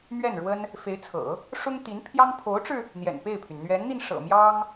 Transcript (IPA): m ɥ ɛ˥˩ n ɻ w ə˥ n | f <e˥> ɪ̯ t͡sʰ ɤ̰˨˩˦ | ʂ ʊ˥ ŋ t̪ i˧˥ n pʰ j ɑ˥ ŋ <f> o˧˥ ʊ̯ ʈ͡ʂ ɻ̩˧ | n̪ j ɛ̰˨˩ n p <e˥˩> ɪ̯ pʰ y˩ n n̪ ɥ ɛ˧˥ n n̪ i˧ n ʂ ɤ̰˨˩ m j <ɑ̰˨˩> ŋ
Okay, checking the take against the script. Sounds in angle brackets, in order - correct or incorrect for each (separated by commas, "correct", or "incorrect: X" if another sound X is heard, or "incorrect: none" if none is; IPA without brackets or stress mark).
incorrect: e˧˥, incorrect: pʰ, correct, incorrect: ɑ˥